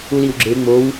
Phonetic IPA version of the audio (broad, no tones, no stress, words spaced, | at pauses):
uliwɡ͡ǁe ŋ͡mow